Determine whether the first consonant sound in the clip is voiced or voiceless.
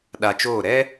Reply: voiced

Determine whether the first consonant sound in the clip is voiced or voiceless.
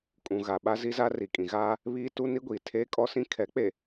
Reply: voiceless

